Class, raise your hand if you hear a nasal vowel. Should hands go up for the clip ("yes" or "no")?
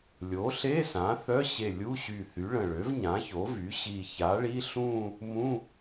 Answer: yes